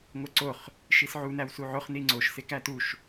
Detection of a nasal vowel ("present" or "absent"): absent